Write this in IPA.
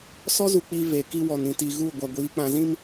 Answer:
s ɔ˦ z u˨ k͡p i˦ v e˨ k i˦ w ɔ˨ n ĩ˨ t i˨ ɣ u˦˨ ɡʷ a˨ ɡʷ iː˨˦ k͡p ã˨ z ĩ˦ m

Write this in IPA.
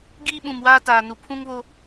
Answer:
ɡ iː˦ ɓ ũ˨ m w aː˦ t aː˨ n u˨ pʰ ũ˦ ŋ β o˦

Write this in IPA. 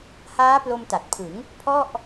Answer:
h aː˦˥ p l o˧ m t a˨˩ t̚ pʰ ɯ˩˦ ŋ | pʰ ɔ˥˩ ʔ

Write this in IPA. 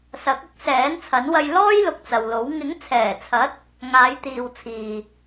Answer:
s ɐ˨˥ k̚ ɐ˥ k̚ s ɛː˨˥ n t͡sʰ ɐ˨˥ n w ɐ˧ j l ɔː˥ j l ʊ˨ k̚ t͡s ɐ˨ w l o˨˥ w ŋ ɪ˨˥ ŋ t͡sʰ ɛː˨˩ t͡sʰ ɐ˨˥ t̚ | ŋ aː˨˧ j t̪ iː˨ w t͡sʰ iː˨

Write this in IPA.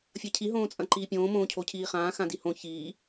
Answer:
fʲ ɐ cʰ i ɦ õː t͡sʼ ɐ̃ ǃ iː pʲ õː m õː cʰ o cʰ iː χ ãː x ã d i h õ ç iː

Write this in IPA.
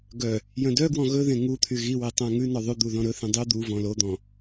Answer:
ɡ œ | j œ̃ d œ ɡ w ɔ̃ ɣ ɵ ð ẽ ŋ u t̪ʰ y ɣ i w e tˤ æ̃ ŋ ʉ n ɔ ðˤ ʉ d̪ u ð ɔ̃ ɾ ɵ θ ĩ dˤ y d̪ u v ɔ̃ l o d̪ ɔ̃

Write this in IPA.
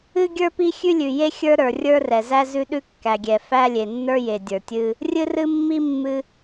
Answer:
ɨ˥ ɡʲ ə˞˥ p i˥ xʲ ʉ˥ lʲ ʉ˩ j e˥ xʲ ə˞˥ ɾ ə˞˩ rʲ ə˞˥ r ɛ˩ z æ˥ z ʉ˥ ɗ ʉ˥ kː æ˩ ɡʲ ɛ˩ f æ˥ lʲ e˩ nː ə˞˥ j e˩ dʲ ə˞˩ tʲ ɨ˥ | rʲ ɨ˥ r ɨ˥ mː i˥ mː ɨ˥

